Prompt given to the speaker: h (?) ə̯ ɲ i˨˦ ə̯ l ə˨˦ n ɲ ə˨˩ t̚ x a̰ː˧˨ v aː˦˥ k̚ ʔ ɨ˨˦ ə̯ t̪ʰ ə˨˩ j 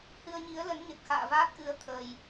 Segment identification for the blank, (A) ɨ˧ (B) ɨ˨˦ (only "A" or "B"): A